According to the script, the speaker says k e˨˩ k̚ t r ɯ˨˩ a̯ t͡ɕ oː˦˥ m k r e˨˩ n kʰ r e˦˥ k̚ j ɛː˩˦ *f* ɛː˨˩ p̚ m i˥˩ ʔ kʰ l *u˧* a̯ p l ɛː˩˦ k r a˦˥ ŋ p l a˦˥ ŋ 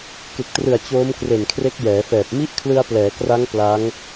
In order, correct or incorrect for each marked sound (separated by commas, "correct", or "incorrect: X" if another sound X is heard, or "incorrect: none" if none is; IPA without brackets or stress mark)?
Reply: correct, incorrect: ɯ˧